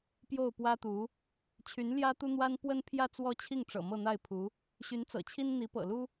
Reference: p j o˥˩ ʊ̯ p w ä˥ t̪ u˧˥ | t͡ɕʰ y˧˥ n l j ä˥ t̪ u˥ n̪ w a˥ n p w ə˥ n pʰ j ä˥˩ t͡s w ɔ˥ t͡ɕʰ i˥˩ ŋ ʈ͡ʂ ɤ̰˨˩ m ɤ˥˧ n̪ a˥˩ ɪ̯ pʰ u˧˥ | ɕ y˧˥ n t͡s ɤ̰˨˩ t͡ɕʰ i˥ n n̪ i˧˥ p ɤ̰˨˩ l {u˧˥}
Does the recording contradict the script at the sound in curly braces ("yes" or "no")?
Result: yes